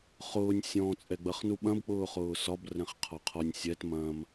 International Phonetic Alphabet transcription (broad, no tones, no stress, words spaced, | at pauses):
χʊːnʲ sʲɔ̃ t͡sʼɛɡ͡bɐχnuɓɐ̃b k͡pʊːχʊːsɒb rɛ̃χqʰɒqʰɒnʲ sʲɛt mɐ̃m